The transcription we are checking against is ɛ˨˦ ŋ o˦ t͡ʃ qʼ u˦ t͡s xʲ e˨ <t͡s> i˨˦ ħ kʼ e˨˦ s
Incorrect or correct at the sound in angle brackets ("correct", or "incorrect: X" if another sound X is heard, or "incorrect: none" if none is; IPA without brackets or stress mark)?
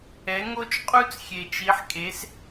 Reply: incorrect: t͡ʃ